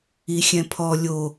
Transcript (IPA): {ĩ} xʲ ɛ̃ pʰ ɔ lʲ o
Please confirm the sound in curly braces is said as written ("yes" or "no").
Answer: no